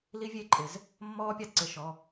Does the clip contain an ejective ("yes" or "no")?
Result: yes